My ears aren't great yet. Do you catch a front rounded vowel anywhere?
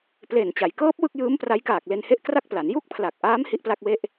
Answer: no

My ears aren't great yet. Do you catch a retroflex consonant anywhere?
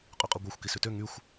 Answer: no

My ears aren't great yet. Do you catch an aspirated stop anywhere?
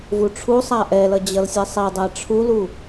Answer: yes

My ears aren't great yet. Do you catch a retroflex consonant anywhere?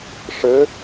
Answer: yes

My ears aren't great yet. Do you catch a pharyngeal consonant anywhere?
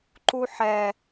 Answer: yes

